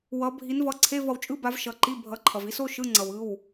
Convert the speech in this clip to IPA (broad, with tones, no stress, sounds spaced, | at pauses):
w ʌ˨˦ bʱ i˨˦ n v ʌ˩˧˩ ǀʰ e˧˥˧ v ʌ˩ w t͡ʃʼ ɯ˧˥˧ b a˨˦ v ʃ ʌ˩˧˩ ǃ i˧˥˧ bʱ ʌ˩˧˩ ǃʰ ʌ˩ v i˦˥ s o˧˥˧ ʃ ɯ˧˥˧ ŋ͡ǀ ʌ˩ w ɯ˩˧˩ w